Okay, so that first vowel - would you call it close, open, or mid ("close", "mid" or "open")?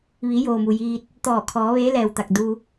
close